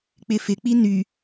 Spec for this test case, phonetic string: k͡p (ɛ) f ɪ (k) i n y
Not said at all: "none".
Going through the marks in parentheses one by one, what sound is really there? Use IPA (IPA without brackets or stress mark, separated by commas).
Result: ɪ, k͡p